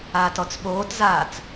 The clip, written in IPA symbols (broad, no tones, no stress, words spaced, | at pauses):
aːtɔt͡sɓoːtzaːt͡s